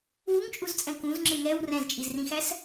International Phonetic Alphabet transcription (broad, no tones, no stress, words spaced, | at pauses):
wuŋt͡ʃʼuzt͡sʼɛ̃ kũzŋ͡ǁɪ ŋɛw rɛ̃zt͡ʃʼizrĩxæs